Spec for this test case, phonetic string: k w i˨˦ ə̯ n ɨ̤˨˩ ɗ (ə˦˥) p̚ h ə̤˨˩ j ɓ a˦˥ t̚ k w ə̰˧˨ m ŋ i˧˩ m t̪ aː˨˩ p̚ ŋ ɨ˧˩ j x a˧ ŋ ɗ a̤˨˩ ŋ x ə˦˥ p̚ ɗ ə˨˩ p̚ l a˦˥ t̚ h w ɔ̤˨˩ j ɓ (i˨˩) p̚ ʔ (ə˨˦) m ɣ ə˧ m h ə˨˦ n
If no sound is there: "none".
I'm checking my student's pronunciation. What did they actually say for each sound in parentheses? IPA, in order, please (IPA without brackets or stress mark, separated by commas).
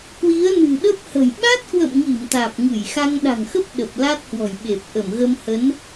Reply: ə˦˥, e˨˩, ə˧˩